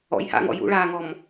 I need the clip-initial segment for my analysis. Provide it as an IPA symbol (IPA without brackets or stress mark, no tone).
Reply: ɔ̰